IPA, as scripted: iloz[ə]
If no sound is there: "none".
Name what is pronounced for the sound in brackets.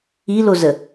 ə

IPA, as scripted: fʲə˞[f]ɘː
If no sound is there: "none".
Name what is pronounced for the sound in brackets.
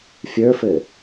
f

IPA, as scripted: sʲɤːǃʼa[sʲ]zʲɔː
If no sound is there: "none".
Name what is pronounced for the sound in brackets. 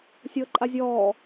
none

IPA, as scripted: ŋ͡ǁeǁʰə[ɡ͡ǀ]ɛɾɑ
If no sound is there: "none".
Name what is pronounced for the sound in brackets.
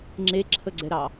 ɡ͡ǀ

